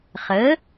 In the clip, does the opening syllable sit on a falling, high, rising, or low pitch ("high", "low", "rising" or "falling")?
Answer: rising